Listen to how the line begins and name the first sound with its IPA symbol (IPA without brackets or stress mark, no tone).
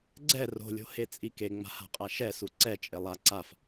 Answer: ɡ͡ǀ